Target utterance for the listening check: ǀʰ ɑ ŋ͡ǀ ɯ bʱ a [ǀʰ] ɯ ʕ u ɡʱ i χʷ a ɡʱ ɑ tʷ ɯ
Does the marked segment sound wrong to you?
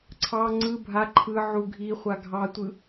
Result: yes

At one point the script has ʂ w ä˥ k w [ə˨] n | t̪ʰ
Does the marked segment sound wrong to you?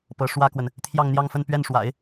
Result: no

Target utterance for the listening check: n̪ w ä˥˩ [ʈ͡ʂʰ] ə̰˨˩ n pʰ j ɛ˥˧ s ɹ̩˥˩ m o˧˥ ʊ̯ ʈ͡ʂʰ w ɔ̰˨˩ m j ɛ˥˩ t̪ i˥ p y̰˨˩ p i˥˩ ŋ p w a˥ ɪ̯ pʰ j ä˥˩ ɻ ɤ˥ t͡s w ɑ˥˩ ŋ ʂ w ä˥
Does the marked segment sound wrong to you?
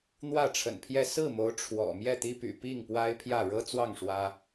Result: no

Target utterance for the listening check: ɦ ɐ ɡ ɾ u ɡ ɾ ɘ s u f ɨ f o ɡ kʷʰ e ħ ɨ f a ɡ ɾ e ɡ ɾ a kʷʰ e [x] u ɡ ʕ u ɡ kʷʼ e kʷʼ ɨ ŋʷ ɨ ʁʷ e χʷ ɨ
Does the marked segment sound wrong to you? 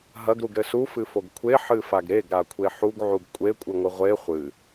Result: yes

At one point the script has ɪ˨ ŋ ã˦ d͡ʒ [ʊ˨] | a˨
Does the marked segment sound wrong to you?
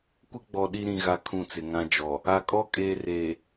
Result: yes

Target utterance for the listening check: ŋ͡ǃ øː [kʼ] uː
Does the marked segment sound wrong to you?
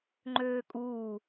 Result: no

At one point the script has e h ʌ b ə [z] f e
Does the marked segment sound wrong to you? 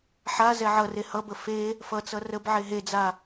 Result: yes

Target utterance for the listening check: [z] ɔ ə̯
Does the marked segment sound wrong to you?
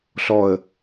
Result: yes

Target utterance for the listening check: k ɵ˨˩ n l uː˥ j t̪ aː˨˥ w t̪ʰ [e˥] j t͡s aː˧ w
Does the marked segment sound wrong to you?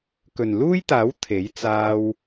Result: yes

